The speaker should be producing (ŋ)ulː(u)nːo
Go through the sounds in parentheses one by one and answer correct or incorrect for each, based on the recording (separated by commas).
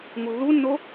correct, correct